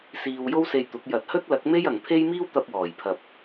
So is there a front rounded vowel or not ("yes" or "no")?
no